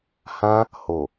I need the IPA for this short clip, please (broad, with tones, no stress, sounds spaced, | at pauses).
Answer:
h ã˧ | h o˨